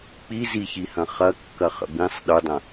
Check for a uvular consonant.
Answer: present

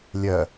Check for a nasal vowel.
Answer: absent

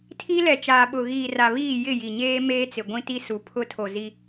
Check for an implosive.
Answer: present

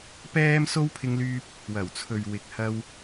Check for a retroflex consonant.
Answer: absent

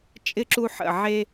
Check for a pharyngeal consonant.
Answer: present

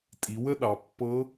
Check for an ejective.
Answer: present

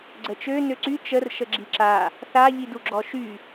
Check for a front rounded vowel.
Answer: present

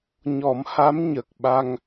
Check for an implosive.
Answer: present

